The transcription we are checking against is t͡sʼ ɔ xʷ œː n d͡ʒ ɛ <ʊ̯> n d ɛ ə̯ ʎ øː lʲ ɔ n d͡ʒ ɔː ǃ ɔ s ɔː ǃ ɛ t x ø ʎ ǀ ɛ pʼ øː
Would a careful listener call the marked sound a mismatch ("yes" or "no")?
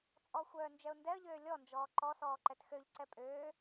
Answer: no